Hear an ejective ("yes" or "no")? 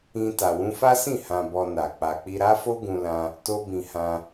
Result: no